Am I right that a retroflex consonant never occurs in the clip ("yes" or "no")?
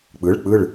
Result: no